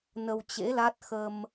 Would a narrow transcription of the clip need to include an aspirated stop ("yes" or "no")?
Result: no